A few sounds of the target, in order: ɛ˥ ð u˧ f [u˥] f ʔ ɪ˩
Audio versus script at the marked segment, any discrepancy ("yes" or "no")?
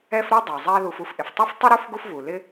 no